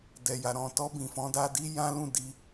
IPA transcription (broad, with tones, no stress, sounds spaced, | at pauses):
d ɛ˨ j a˨ ɾ ɔ̃˨ t ɔ˧ b ĩ˨ f ɔ̃˨˦ d a˧ d i˦ j ã˦ l ũ˦˨ d i˧